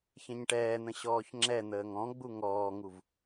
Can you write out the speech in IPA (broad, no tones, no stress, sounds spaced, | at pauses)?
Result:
ç ɛ̃ ɲ ʈ ɛː n̪ ə̃ ɕ ɔː ç ŋ͡ǁ ɛ n̪ əː ŋ ɔ̃ ɡ͡b u ŋ ɔː ŋ u v